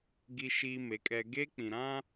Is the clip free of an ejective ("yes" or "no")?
no